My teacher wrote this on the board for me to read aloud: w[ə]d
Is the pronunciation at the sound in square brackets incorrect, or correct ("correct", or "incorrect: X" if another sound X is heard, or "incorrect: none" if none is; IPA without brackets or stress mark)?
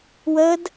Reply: correct